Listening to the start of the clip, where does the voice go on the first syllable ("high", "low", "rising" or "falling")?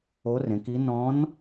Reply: rising